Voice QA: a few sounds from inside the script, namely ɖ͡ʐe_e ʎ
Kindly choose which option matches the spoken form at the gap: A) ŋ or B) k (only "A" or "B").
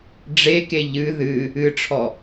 B